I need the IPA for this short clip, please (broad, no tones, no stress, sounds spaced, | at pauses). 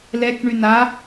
l ɛ k ɳ y n a